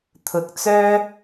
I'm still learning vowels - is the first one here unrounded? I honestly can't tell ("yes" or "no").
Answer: no